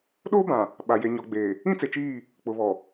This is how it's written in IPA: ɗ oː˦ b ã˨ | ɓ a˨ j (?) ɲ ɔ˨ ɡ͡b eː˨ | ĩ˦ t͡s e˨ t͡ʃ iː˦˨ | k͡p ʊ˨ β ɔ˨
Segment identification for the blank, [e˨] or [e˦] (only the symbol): e˨